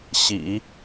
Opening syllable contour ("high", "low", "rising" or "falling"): low